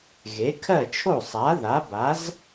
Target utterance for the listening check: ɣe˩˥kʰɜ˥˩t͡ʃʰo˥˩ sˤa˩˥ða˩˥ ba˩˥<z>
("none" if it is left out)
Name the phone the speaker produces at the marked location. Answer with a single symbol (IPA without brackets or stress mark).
z